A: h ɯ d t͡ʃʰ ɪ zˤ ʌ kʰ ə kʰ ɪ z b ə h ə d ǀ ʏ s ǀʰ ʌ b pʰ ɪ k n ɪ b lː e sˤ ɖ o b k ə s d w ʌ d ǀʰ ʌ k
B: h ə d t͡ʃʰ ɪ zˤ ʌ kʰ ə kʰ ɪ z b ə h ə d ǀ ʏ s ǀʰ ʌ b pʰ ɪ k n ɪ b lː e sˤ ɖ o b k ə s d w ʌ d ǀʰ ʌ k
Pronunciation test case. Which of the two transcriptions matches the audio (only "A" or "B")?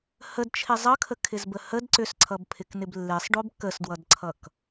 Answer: B